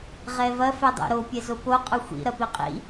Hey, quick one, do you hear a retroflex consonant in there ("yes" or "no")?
no